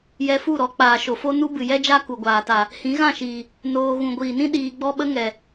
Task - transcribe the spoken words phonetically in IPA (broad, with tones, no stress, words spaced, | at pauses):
jɛ˧fu˦˨ɾɔ˧ k͡paː˨ʃo˨fo˦ nu˦bɨ˨jɛ˦d͡ʒa˦ ku˨ɡʷaː˨ta˨ | hĩ˨˦ɣã˦˨ʃiː˨ | noː˧ ɣũ˨ɡʷiː˨nĩ˦ ɗiː˧ɡ͡bɔ˦ɓə˦ŋɛ˨